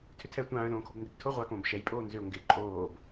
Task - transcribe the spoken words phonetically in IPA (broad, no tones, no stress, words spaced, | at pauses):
tʰʏtʰɛ tʷãːə̯lõːkʰobndɪb tʰo ʁʷakõːb ʃɛj pʼoːnzʏʊ̯ ŋɡɪ ǃʼoːb